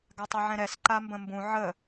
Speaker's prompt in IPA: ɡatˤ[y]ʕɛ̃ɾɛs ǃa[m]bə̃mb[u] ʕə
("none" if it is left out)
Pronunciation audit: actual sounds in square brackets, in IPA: u, m, ũ

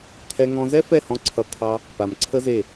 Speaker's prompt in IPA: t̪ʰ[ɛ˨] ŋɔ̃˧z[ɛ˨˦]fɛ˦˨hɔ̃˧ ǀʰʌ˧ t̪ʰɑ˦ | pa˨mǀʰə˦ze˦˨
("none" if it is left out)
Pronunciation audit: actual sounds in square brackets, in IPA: ɛ˦, ɛ˦

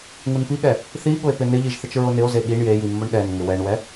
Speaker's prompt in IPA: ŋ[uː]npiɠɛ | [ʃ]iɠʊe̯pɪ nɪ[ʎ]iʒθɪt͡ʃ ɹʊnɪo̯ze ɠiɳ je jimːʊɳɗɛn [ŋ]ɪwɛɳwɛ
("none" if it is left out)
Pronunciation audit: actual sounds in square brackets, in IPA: u, θ, ʎ, ŋ

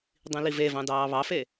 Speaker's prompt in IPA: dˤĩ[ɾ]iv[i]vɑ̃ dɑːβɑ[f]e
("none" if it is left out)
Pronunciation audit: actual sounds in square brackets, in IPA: l, e, f

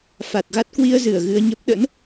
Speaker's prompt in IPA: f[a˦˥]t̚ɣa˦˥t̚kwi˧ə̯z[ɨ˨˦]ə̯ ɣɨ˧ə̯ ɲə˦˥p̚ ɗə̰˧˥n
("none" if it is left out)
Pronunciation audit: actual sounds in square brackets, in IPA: a˨˩, ɨ˧˩

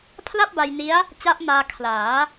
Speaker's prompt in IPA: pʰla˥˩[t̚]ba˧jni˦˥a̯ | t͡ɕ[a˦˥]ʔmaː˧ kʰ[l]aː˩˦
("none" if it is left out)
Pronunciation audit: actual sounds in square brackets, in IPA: p̚, a˦˥, l

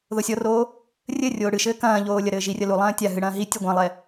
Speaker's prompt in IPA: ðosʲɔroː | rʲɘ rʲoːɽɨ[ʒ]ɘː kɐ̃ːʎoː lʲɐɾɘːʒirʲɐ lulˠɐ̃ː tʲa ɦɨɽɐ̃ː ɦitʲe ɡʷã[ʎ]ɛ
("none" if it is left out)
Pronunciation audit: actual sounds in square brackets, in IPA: ʃ, lˠ

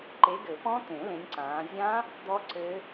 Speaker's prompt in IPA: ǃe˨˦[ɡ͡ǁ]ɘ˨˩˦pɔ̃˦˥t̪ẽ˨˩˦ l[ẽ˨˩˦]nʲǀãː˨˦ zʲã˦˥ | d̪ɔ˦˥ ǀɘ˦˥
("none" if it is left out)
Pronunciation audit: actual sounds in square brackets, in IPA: ɡ, ẽ˨˦

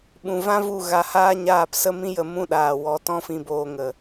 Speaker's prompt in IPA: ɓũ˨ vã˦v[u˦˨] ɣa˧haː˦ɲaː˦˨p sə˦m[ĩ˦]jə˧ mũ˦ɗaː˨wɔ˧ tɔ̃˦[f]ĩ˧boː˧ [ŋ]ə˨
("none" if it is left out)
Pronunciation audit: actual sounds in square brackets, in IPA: u˦˨, ĩ˦, f, ŋ

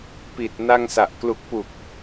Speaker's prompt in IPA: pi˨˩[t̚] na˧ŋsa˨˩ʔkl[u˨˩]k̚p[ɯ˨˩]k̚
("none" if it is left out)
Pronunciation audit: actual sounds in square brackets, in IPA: t̚, u˨˩, u˨˩

